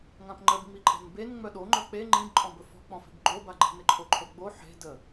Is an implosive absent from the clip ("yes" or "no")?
no